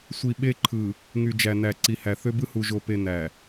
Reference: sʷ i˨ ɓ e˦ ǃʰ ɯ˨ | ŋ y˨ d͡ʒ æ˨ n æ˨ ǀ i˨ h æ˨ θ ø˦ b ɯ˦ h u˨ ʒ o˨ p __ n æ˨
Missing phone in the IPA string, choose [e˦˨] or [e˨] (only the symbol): e˨